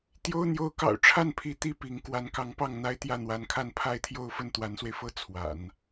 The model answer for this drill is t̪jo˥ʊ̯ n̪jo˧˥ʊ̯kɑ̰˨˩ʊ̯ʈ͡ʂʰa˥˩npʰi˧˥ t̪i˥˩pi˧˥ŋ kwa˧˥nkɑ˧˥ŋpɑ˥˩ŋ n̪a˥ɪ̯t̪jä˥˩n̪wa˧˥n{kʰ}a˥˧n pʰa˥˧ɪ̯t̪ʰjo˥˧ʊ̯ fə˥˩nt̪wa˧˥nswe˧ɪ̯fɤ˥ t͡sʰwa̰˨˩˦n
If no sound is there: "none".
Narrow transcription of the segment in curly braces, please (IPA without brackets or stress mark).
kʰ